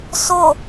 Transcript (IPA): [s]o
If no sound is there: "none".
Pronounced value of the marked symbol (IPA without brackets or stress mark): s